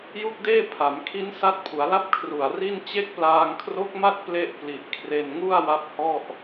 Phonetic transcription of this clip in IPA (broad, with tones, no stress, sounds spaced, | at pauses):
j u˥˩ k̚ d eː˥˩ pʰ a˩˦ m kʰ i˦˥ n s a˦˥ t̚ pʰ u˩˦ a̯ l a˥˩ p̚ kʰ r u˨˩ a̯ r i˥˩ n t͡ɕ e˦˥ k̚ p l aː˧ ŋ kʰ r o˦˥ k̚ m a˥˩ t̚ p l e˥˩ ʔ p l i˨˩ ʔ kʰ r e˧ n ŋ u˥˩ a̯ w a˦˥ p̚ h ɔ˥˩ ʔ